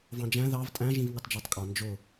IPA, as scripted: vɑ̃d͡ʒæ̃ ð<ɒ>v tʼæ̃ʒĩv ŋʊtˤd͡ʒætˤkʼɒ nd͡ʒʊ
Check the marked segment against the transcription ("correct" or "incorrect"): incorrect